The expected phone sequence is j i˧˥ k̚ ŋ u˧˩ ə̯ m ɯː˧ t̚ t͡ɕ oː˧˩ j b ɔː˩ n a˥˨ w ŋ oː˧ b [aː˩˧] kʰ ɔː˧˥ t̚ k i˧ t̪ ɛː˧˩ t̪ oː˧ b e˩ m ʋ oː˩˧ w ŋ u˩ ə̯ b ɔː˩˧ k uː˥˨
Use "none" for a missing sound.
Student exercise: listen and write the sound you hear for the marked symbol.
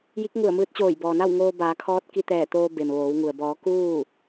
aː˩˧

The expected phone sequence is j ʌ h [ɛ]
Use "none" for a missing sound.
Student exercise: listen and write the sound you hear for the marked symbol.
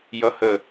ə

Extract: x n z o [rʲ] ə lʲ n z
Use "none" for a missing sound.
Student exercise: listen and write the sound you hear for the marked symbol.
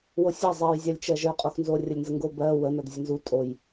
rʲ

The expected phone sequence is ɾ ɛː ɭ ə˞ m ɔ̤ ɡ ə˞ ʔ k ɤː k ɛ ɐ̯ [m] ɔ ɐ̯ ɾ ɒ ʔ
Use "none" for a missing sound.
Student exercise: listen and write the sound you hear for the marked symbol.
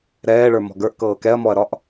m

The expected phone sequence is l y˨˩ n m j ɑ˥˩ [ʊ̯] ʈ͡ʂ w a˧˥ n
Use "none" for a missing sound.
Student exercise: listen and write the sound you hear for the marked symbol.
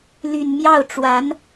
ʊ̯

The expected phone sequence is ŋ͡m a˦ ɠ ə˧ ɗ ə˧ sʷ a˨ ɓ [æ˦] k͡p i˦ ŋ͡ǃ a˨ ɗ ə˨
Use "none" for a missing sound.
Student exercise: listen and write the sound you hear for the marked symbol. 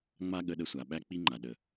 æ˦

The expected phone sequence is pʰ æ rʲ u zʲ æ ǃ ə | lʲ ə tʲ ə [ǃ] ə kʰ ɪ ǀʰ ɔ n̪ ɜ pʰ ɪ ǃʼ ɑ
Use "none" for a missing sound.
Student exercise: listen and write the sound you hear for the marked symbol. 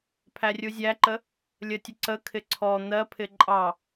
ǀ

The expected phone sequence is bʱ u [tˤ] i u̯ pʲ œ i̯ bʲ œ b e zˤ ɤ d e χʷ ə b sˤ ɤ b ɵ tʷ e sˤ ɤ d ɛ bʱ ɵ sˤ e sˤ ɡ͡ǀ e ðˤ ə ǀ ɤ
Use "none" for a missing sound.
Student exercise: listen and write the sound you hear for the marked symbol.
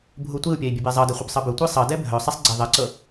tʷ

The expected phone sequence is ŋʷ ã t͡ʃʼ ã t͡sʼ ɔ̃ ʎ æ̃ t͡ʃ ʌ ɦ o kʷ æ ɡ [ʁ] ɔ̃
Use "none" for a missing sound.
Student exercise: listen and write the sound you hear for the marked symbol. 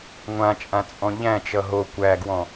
w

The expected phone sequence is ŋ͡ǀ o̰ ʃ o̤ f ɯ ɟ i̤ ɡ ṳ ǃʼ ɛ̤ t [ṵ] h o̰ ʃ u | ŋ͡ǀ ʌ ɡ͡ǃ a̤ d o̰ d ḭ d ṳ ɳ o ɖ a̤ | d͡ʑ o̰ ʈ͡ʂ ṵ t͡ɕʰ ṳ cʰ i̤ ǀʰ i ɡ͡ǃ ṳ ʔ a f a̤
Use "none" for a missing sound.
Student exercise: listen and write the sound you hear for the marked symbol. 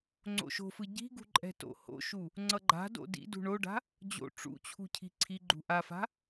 o̰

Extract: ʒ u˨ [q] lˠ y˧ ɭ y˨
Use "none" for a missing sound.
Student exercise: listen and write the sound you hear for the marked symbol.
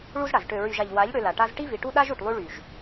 ʈ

